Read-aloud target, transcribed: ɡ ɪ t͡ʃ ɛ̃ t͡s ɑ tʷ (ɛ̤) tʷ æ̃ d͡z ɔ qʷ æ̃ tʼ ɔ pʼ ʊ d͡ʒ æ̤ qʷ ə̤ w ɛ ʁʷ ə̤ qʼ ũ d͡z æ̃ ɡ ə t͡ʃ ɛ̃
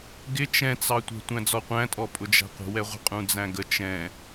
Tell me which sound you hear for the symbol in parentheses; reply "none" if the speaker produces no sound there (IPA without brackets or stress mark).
ɛ̤